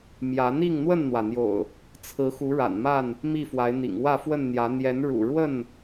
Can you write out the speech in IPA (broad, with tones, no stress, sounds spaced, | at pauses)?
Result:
m j ä˨˦ n̪ i˥˨ ŋ n̪ w ə˥˨ n n̪ w ä˩ n̪ j o̰˨˩ ʊ̯ | t͡sʰ ɹ̩˨˦ x u˨˦ ɻ a̰˨˩ n m a˥˨ n | m i˥˨ f w a˨˦ ɪ̯ n̪ ḭ˨˩ ŋ w ä˥˨ f w ə˥˨ n n̪ j ä˨˦ n̪ j ɛ˨˦ n ɻ ṵ˨˩ ɻ w ə˥˨ n